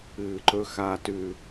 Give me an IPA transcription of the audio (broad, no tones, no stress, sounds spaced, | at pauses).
ɨː ǃ ɵ x aː t ʉ